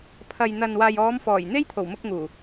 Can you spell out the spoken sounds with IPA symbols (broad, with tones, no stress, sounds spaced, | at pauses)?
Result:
pʰ ɐ˨ j n̪ ɐ˨ n w aː˨ j ɔː˨˧ m f ɔː˨˩ j n̪ e˥ j t̪ʰ o˨˩ w m ʊ˧ k̚ ŋ uː˨˩